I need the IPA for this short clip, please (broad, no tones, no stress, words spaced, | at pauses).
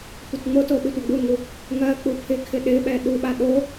tʷətŋ͡moto ɓɪtʷaɡ͡buŋu | ŋɜ k͡pupʰɪkʰɪ ɗɪɓɛ ɗuɓa ɗo